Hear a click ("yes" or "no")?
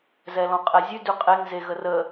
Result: no